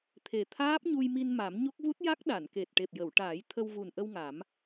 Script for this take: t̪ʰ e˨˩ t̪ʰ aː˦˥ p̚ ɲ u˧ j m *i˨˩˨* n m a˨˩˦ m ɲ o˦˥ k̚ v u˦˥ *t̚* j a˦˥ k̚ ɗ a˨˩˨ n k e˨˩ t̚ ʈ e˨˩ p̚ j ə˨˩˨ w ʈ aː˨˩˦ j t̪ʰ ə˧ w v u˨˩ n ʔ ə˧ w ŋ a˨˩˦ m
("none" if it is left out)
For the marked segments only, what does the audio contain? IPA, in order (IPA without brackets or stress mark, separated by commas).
i˧, t̚